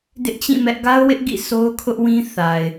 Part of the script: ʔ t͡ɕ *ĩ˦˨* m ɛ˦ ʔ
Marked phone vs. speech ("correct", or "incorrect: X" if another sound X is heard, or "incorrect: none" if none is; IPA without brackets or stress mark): correct